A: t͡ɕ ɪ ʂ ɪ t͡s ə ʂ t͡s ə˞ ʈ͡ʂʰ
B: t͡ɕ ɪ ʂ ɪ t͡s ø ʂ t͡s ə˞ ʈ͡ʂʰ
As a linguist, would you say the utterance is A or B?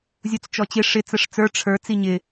A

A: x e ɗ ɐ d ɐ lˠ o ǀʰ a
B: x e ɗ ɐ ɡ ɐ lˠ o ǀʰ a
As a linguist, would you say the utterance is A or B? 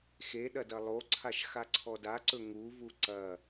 A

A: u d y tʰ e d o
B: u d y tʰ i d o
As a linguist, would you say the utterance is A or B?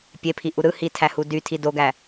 B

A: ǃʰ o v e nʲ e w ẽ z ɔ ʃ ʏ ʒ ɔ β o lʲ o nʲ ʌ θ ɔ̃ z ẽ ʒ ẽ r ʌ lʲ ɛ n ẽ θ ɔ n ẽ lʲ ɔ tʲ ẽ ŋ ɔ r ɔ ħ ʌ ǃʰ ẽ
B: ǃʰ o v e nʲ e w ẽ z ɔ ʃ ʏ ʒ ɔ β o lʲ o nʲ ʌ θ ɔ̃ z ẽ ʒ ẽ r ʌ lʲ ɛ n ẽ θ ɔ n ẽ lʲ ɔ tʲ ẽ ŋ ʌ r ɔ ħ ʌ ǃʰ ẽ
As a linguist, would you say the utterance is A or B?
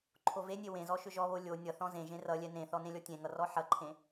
B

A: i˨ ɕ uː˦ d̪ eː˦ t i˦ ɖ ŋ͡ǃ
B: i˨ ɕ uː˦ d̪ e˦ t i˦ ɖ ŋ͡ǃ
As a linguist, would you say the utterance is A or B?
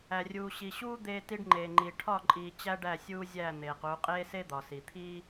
A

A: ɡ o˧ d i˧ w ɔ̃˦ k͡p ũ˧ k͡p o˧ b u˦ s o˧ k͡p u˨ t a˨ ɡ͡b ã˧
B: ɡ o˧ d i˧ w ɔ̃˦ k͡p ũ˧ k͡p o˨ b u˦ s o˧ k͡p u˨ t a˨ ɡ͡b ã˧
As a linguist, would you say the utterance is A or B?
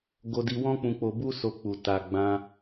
A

